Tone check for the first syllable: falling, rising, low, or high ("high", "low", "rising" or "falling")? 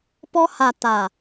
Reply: high